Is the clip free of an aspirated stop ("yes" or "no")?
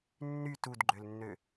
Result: yes